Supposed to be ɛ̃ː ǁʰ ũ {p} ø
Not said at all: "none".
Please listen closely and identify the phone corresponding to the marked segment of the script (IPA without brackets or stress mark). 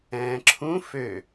f